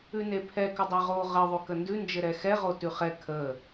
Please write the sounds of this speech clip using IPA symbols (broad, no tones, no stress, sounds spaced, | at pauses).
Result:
ʉ n e pʰ ɛ k ə dˤ ɛ ʁ o ʁ ə ðˤ ʉ k ə n d ʉ n d͡ʒ ɘ ɾ ɛ x ɛ ʁ o t ʉ χ ɛ kʰ ə